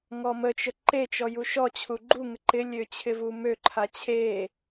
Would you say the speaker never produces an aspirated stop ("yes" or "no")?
no